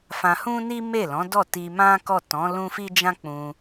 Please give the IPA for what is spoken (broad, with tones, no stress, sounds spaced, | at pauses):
f ã˧ h ũ˦ n i˦ m e˦˨ l ɔ̃˨˦ d ɔ˦˨ t i˧ m ã˦ k ɔ˦˨ t ɔ̃˨˦ l ũ˦ f i˦ d͡ʒ ã˦ k͡p ũ˧